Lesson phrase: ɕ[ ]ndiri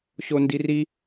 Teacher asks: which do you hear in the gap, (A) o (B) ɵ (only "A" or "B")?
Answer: A